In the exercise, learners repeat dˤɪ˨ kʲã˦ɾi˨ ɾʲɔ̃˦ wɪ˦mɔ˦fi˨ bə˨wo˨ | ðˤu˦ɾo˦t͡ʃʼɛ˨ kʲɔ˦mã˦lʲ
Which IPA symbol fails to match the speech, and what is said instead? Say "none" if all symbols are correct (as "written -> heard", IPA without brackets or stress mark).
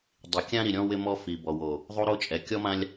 ə˨ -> ɔ˨